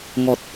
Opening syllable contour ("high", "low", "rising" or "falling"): low